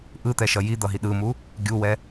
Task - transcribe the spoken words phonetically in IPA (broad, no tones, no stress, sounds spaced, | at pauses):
ʔ ɯ t̪ ɛ ʃ ʌ j i d̪ ʌ ɦ i ɗ ɯ m u | ɡʲ u w ɛ